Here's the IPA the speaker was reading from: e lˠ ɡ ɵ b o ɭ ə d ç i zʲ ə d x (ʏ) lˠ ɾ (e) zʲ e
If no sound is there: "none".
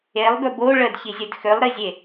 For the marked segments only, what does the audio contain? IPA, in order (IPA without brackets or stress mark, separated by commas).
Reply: ʏ, i